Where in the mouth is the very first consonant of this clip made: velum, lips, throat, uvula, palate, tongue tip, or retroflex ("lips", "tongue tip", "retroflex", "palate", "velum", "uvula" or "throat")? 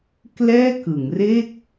velum